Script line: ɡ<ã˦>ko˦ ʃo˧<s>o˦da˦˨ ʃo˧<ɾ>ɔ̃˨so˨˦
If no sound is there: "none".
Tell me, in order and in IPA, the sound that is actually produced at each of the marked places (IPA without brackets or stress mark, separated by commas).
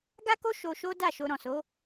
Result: a˦, ʃ, ɾ